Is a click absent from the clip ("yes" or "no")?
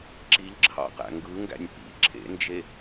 no